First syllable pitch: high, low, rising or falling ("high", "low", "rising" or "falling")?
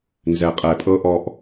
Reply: low